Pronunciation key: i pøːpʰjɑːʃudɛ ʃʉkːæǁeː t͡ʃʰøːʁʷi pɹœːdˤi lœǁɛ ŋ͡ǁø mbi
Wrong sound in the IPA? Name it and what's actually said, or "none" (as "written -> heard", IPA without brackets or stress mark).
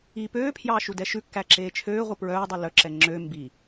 none